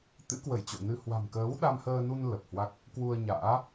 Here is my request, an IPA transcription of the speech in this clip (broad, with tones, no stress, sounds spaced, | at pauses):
t̪ ɨ̰˧˥ k w ə˧˩ j t͡ɕ o̰˧˨ n ɨ˧ h w a̤˨˩ m k əː˨˦ w ɗ a˧ m h əː˧ n u˧ n l ə˨˩ p̚ h w a˦˥ k̚ | k w u˧ ə̯ ɲ a̰ː˧˥